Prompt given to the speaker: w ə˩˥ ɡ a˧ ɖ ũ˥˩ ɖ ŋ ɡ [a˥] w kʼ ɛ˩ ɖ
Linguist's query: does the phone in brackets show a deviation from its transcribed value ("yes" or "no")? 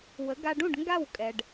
yes